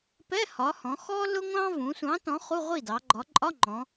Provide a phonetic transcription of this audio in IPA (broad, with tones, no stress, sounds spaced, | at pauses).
p ɛ˧˥˧ h ɒ˩˧ h ɔ̃˩˧ x ɔ˥ l ʊ˥ ŋʷ ɑ̃˥ v ũ˩˧ sʷ ɑ̃˨˥ t ɔ̃˨˥ χ u˧˥˧ ʁʷ i˥˩ d ɑ˩˧ ɡ͡ǃ ɒ˩˧ ǃʼ ɒ˧˥˧ ŋ͡ǃ ɔ̃˩˧